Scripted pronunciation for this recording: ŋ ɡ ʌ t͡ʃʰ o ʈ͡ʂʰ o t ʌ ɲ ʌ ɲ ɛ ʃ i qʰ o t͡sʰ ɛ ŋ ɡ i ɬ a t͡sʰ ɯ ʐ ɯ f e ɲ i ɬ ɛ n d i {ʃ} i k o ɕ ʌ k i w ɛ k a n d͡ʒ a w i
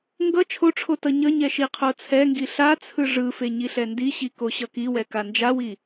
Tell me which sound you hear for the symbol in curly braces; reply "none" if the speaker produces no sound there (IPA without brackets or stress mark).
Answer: ɕ